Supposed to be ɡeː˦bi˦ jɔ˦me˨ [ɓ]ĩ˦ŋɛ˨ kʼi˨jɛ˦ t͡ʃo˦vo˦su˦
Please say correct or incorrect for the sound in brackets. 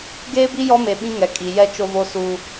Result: correct